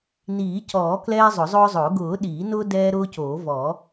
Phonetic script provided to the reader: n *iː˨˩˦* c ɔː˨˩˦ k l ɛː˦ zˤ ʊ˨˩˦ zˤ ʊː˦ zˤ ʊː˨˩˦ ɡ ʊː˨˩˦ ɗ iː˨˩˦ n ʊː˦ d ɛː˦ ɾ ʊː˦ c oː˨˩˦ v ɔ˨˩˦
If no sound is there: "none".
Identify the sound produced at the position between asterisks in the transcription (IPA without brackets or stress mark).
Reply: iː˨˩˦